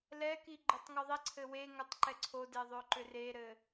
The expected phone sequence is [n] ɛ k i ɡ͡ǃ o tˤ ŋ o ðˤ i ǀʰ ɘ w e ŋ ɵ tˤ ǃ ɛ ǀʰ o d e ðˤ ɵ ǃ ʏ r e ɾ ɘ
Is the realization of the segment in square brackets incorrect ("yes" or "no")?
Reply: yes